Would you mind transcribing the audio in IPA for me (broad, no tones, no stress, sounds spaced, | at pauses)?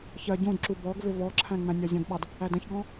ç ɜ ɟ ũ d ǁ u b ɔ ɡ v ɪ v ɔ ǁʰ æ̃ ŋ͡m æ̃ nʲ ɒ zʲ ɔ̃ d ɓ ɑ d | æ d ə̃ ç ɡ ɔ̃